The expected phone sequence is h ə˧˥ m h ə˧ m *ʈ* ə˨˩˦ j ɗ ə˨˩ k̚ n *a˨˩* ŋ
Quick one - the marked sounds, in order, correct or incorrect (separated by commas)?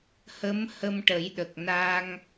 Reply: correct, incorrect